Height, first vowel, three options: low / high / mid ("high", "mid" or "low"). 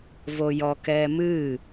mid